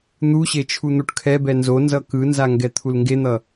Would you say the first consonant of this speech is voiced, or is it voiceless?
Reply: voiced